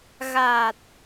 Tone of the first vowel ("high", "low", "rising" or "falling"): low